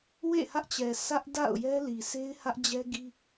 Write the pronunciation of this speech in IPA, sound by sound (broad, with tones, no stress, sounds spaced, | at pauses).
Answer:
w ḛ˦˨ h ä˦ ʔ t͡ɕ ɛ˨ s ä˦ ʔ d a̰˦˨ ʊ̯ j ɛ˦ l i˨ sʰ e˦ ɪ̯ h ä˦ ʔ d͡ʑ ɛ˦ ɡ i˦